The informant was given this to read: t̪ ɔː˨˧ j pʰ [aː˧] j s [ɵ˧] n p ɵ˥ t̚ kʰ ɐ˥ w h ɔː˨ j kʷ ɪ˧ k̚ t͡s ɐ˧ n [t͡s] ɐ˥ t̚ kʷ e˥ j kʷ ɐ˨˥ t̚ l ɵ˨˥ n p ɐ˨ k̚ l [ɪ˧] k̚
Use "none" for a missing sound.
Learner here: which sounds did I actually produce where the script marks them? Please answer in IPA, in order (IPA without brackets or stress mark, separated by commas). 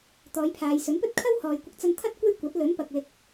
aː˨, ɵ˨˥, t̪ʰ, ɪ˧